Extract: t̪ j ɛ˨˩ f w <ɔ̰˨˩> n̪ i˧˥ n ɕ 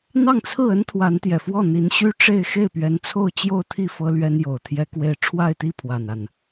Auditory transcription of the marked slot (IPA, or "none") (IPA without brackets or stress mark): ɔ˥˩